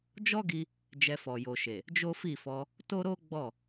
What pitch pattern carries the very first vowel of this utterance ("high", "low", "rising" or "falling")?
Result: high